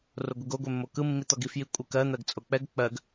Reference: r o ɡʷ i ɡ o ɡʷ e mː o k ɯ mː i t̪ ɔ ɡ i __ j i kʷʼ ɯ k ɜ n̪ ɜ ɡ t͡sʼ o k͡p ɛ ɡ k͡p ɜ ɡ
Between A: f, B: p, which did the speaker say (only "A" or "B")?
A